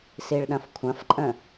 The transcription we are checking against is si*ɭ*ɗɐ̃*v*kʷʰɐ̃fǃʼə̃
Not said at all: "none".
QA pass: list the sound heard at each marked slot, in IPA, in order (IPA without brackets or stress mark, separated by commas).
ɭ, f